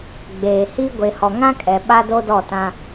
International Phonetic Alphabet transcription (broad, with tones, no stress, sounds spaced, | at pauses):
ɡ͡b eː˨ h i˦ ɡʷ e˨ h ɔ˨ ŋ ã˦ kʼ ɛ˨ ɓ a˦ d o˦ d ɔ˦˨ t ã˦